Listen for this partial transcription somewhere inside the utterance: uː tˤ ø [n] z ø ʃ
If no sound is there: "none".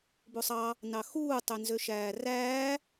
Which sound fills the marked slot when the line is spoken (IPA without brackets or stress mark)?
n